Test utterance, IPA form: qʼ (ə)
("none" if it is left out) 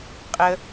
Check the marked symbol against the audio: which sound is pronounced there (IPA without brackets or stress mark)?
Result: ə